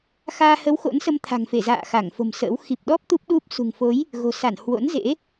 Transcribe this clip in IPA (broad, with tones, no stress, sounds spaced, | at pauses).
x aː˧ h ə˨˦ w x o̰˧˥ n s ə˧ m t̪ʰ a̤˨˩ ŋ f e˧˩ z a̰ː˧˨ x a˧˩ ŋ f o̤˨˩ m s ə̰ː˧˥ w x i˨˩ p̚ ɗ ɔ˦˥ p̚ t̪ u˦˥ p̚ ɗ u˦˥ p̚ s ṳ˨˩ ŋ f o˨˦ j | ɣ o̤˨˩ s a˧˩ n h w o̰˧˥ n z ḛ˧˥